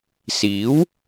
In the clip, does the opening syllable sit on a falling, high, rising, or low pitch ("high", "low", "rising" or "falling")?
rising